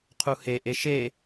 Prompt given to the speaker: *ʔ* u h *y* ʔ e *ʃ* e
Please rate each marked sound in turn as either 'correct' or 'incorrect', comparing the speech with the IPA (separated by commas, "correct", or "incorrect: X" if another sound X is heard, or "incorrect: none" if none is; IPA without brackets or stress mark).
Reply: incorrect: qʰ, incorrect: e, correct